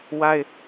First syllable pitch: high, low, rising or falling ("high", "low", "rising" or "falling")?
high